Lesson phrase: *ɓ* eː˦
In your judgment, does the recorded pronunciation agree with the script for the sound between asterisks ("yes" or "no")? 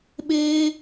yes